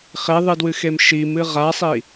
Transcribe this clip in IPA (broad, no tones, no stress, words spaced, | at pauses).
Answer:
χeðˤɨdwɨxem ʃimɨ ʁasˤi